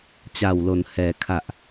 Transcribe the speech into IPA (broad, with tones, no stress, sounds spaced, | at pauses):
t͡ɕ a˨˩ w l o˩˦ n h ɛː˩˦ kʰ a˨˩ ʔ